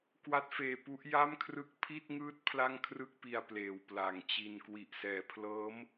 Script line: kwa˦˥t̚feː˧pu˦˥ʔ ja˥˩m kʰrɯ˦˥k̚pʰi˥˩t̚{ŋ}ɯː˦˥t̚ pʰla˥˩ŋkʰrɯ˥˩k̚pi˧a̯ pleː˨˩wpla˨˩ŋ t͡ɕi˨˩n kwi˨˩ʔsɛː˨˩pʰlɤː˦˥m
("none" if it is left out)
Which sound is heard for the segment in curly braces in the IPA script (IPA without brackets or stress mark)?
ŋ